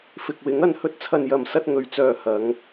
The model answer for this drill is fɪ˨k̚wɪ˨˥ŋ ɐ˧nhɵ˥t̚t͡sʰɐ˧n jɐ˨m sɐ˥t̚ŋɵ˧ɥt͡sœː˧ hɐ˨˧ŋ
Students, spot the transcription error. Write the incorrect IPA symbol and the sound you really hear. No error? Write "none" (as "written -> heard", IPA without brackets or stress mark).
none